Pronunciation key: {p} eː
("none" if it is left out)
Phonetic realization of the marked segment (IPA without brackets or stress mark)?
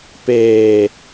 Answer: p